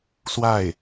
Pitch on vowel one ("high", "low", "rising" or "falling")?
falling